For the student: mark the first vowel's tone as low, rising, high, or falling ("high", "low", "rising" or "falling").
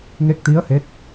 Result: rising